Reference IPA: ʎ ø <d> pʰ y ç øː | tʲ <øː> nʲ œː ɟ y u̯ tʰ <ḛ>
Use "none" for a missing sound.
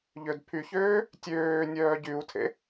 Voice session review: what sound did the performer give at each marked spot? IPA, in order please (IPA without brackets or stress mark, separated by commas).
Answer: d, øː, ḛ